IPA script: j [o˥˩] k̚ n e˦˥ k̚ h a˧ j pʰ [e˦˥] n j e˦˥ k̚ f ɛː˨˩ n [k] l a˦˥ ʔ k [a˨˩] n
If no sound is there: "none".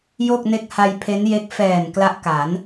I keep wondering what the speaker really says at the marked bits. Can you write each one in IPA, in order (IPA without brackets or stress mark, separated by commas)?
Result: o˥˩, e˦˥, k, a˩˦